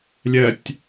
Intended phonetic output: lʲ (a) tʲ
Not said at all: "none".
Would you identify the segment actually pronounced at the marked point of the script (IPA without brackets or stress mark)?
ɐ